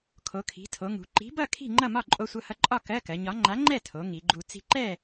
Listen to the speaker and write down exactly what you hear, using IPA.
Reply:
kʰ o˩˧ kʰ i̤˩˧ tʰ o˩˧ ŋ ṳ˩˧ ǃ i̤˨˥ b ʌ˥˨ kʰ i̤˥˨ ŋ͡ǃ ʌ˥˨ m ɒ˥˨ ǃʼ o˧ sʷ ʌ˧ h ʌ˧ ǃʼ ɒ˥˨ k ɜ˧˥˧ k ɜ˩˧ ɲ ɒ˨˥ ŋ͡ǃ a˨˥ ŋ͡ǃ ɛ˥˨ tʰ o˩˧ ŋ i˩˧ ɡ͡ǃ u˧ t͡s i̤˧ ǃ ɛ˥˨

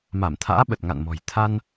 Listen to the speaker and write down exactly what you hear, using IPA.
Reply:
m a˧˩ m t̪ʰ a̰ː˧˥ ɓ ə˨˩ t̚ ŋ a̰˧˨ n m ɔ̤˨˩ j t̪ʰ a˧ n

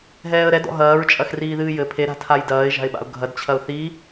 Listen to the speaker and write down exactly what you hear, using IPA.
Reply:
ɦ ɛː ə̯ ɾ ɛ d ɔ̰ ɦ ɐː ɹ t͡ʃʼ ɐ x r iː ð ɨː j ɘ pʰ e ɾ a̤ tʰ a j d ɐː ɪ̯ ʒ a̤ ɪ̯ ɓ a̰ ʊ̯ ɡʱ ɐ d t͡ɕʰ ɐ ʊ̯ θ i

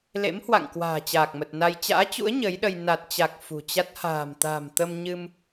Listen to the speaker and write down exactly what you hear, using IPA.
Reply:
l ḛ˧˥ m h w a̰˧˨ ŋ k w a̤ː˨˩ t͡ɕ aː˨˩ k̚ m ə˨˩ t̚ n a˧ j t͡ɕ a̰ː˧˥ t͡ɕ ṵ˧˥ ə̯ ɲ ə˨˦ j ɗ ə˧ j n a˨˩ t̚ t͡ɕ a˨˩ k̚ f ṳ˨˩ t͡ɕ a˦˥ t̚ h a̤ː˨˩ m t̪ a̤ː˨˩ m t̪ ə˧ m ɲ ɨ˧ m

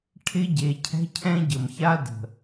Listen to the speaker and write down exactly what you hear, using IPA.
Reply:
ʈʰ ɪ˦ ɟ e˨ cʰ ɛ̤˦ cʰ ɛ̃˦ ɟ ə˨ m ç a˦ d ə̤˨

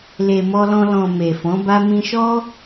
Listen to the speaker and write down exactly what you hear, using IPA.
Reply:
l e˨ m ɔ˧ l ɔ̃˧ l ɔ̃˨ m e˨ f ɔ̃˨˦ b a˦ m ĩ˧ ʃ ɔ˦

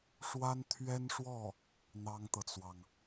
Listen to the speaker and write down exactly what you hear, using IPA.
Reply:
ʂ w a˥ n t̪ʰ ɥ ɛ˥ n ʂ w ɔ˥˩ | n̪ ɑ˥ ŋ t̪ ɤ˨ t͡s w ɑ˩ ŋ

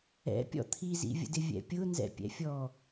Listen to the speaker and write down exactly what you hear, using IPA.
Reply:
ɛ̰ pʲ ɔ̰ t̪ʰ i z ḭ vʲ ə̰ d ɪ vʲ ɛ̰ pʲ ʊ n z ɛ̰ pʲ ɛ̰ fʲ ɔ

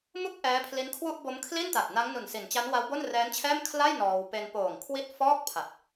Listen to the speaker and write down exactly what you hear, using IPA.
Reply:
m u˥˩ k̚ ʔ ɛː˦˥ pʰ l i˦˥ n kʰ w u˥˩ ʔ b o˦˥ m kʰ l i˥˩ n t a˨˩ t̚ n a˦˥ ŋ n u˨˩ n s i˩˦ n t͡ɕ a˦˥ n w a˦˥ w b o˥˩ n r ɛː˦˥ n t͡ɕʰ ɛː˥˩ m kʰ l a˥˩ j n ɔː˧ w p e˧ n p oː˨˩ ŋ kʰ w i˥˩ t̚ f ɔː˥˩ k̚ pʰ a˨˩ t̚

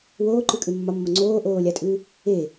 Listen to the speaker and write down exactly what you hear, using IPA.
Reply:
w oː ǃ ʉ kʼ ʉ mː ɒ mː o ŋ͡ǀ oː ʔ oː lʲ a tʼ ʉ | e

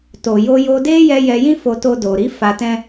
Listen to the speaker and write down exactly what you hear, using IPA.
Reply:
t o˨ j o˧ j o˧ d e˦ j ɛ˧ j ɛ˧ j ĩ˦ f o˧ t o˧ d o˨ ɾ i˨˦ f a˧ t ɛ̃˦

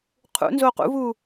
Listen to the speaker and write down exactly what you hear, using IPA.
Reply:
qʰ ṵ n z oː q ṵ v uː

